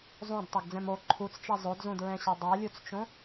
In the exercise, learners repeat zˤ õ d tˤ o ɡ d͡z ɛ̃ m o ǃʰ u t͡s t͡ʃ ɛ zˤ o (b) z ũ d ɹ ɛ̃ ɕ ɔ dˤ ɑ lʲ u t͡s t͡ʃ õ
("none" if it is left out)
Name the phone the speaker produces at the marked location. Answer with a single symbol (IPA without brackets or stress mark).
d